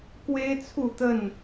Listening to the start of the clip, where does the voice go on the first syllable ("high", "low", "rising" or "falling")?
high